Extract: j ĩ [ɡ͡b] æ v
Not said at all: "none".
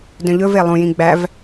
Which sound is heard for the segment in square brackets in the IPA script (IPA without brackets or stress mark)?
ɡ͡b